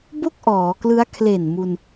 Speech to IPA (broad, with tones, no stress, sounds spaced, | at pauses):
b o˥˩ k̚ ʔ ɔː˩˦ k l ɯ˦˥ a̯ kʰ l e˨˩ n m u˧ n